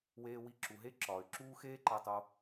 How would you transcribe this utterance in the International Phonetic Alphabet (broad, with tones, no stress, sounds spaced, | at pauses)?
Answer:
w eː˧ w i˧ ǁ u˩ ɦ e˥ ǁ ɒː˩ y̯ ǁ uː˥ x eː˥ ǃ æ˧ tˤ o˧